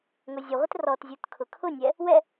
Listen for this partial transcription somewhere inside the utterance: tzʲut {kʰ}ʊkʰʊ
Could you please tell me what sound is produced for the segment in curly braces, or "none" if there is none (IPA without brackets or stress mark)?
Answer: kʰ